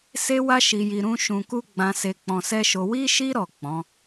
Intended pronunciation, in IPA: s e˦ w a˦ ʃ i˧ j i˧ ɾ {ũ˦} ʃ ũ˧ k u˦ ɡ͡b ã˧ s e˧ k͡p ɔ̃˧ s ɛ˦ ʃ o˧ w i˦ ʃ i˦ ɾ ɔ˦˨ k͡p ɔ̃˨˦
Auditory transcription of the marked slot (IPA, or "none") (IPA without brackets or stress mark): ũ˦